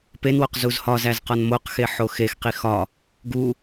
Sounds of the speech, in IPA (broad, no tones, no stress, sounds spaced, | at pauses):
p e n w o q z u z h ɒ z æ z q ɒ n m o q x e ħ o x e x q i x ɒ | ɡ u